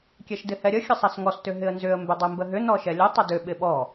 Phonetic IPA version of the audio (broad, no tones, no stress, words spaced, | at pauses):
kʲɛʃdɪhɛɾʲə xʲəsˤɛsŋɔs tʏɦɪə̯nzʏə̯ mbʏdˤɛmbəɦʏ nɔʃɛlʲə tˤədʏ ɓɪɓɔ